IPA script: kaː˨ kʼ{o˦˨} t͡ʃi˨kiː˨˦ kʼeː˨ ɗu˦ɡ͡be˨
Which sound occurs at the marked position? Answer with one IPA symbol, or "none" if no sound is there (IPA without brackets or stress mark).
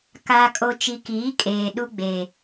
o˨